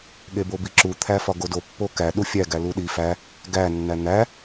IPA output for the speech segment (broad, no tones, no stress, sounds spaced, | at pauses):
ɠ e b o b i ǁ u t̪ʰ æ f ɒ ɡ o d o pː o k æ ɗ u fʲ æ ɡ æ l u ɗ i f æ | ɡ æ nː æ n̪ æ